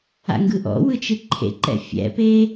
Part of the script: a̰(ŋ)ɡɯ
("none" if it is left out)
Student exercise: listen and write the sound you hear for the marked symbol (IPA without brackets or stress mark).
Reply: ŋ